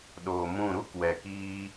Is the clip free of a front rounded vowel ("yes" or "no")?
yes